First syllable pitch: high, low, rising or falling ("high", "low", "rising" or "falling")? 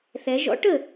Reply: rising